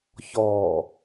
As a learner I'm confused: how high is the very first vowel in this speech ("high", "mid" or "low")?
mid